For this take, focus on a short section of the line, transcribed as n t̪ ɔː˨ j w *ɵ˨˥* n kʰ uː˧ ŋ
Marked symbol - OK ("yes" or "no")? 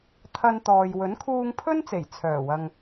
yes